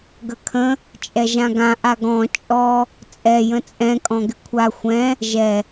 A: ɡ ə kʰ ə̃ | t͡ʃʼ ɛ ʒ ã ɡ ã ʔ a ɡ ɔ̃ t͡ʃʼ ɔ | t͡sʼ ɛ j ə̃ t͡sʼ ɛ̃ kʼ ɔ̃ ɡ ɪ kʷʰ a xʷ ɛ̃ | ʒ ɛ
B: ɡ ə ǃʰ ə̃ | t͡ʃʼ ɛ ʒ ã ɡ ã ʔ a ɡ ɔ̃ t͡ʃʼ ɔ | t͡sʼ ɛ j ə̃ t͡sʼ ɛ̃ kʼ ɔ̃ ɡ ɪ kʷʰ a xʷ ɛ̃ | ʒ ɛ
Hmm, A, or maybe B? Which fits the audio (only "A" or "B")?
A